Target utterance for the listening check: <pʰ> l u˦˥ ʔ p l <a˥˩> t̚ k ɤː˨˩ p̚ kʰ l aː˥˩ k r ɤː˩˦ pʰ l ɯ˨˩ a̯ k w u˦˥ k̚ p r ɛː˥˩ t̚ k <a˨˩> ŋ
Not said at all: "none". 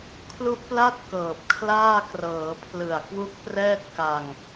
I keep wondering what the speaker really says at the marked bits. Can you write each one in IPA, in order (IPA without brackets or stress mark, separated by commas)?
kʰ, a˥˩, a˧